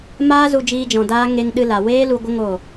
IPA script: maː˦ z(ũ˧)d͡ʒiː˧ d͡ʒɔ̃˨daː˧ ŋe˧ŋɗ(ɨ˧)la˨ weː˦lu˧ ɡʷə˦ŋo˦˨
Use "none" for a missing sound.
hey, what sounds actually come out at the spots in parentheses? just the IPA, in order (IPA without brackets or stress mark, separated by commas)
u˧, ɨ˧